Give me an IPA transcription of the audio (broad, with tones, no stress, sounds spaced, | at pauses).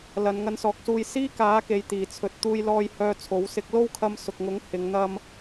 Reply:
l ɐ˨˧ n ŋ ɐ˧ n s ɔː˨˥ k̚ s uː˧ j s iː˥ k aː˨˥ k e˨ j t̪ iː˨˩ t͡sʰ ɵ˨ t̚ t̪ uː˧ j l ɔː˧ j h œː˧ t͡sʰ o˨˥ w s ɪ˧ k̚ l o˥ w kʰ ɐ˧ m s ʊ˨ k̚ ŋ ʊ˨˥ ŋ h ɪ˨˧ ŋ n̪ ɐ˧ m